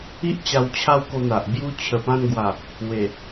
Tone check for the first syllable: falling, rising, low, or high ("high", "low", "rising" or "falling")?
high